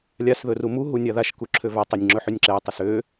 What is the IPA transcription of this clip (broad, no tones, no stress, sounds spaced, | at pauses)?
lʲ a s ð ɵ r u m u ɦ u nʲ a ð a ʃ k u ǁʰ ø v a tˤ ø nʲ ŋ͡ǁ ɵ ħ ø nʲ ǁ ɛ ɪ̯ tˤ u s ø